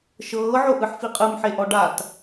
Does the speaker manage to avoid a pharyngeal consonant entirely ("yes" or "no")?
no